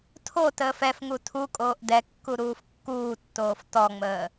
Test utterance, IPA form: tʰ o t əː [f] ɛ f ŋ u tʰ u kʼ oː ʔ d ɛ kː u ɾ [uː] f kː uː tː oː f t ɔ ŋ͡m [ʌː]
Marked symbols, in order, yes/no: yes, yes, no

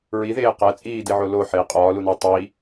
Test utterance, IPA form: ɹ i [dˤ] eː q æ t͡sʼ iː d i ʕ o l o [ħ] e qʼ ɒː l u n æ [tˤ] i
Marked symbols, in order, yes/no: no, yes, yes

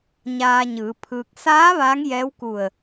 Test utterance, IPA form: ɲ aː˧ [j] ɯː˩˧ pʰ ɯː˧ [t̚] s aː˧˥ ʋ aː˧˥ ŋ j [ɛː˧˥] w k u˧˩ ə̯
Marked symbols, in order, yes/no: no, no, yes

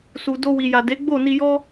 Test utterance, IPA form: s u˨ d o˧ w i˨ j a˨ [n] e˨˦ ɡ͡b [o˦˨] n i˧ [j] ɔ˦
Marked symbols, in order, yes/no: no, yes, yes

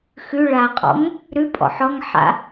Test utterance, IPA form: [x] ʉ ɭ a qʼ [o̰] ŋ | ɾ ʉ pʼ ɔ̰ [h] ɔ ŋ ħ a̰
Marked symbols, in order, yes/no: yes, no, no

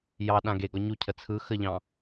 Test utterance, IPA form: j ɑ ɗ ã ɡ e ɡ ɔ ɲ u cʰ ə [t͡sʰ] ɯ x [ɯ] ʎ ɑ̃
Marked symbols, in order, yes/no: yes, no

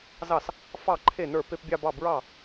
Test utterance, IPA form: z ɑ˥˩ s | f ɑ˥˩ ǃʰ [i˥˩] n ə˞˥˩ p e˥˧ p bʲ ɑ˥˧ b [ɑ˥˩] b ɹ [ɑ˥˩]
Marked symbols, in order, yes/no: no, yes, yes

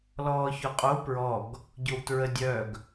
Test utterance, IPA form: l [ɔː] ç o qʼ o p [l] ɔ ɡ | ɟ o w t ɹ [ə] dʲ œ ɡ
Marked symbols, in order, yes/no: yes, no, yes

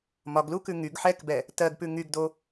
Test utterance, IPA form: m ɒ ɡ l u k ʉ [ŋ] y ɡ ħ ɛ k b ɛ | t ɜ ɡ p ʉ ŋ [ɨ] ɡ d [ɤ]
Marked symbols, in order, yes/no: yes, no, no

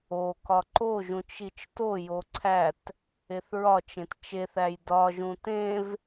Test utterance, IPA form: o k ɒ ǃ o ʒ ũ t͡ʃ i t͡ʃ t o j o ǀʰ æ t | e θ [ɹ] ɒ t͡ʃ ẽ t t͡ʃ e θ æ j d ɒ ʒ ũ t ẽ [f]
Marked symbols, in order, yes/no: yes, no

